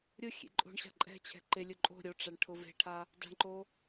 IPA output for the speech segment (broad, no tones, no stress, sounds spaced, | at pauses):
ɾʲ ʊ xʲ ḛ ǃʼ o̤ ɳ ɕ a̤ ǃʼ ɛ̤ t͡ɕʰ ɛ̤ ǃ ɪ lʲ ʊ ǃʼ o̤ ɾʲ o ʈ͡ʂ a ɳ ʈʰ ʊ v e̤ ʈʰ a | d a̤ ɳ ǃ o